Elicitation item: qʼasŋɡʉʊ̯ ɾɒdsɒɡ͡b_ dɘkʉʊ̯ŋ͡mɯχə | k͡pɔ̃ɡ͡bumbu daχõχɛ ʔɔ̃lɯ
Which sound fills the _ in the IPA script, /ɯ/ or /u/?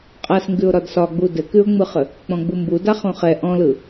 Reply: u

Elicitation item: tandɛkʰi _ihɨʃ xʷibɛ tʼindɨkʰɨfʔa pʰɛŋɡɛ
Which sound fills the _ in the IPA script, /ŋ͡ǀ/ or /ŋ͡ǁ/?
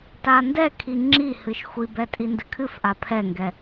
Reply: ŋ͡ǁ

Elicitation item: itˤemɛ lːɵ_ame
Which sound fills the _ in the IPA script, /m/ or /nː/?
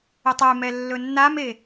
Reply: nː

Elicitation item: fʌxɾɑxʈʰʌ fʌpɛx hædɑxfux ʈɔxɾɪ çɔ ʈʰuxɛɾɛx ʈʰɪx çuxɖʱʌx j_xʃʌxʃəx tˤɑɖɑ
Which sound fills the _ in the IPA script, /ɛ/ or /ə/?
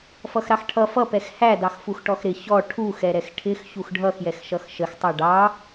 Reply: ɛ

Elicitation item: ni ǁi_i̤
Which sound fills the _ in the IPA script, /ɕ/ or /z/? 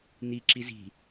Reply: z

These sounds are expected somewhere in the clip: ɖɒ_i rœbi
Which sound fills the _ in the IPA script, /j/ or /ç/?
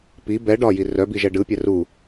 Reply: j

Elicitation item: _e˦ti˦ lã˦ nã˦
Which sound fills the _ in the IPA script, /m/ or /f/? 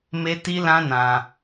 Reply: m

